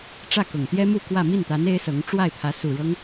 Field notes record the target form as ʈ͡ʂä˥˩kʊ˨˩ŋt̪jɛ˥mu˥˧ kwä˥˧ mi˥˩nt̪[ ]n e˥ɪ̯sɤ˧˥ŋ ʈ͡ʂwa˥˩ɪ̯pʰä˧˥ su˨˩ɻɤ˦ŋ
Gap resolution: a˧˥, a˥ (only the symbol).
a˧˥